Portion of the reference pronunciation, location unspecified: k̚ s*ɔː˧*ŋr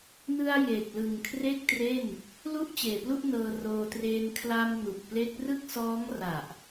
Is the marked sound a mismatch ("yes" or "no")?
yes